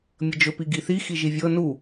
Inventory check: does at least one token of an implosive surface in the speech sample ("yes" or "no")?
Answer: no